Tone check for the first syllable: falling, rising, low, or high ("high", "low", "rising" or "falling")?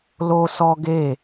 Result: high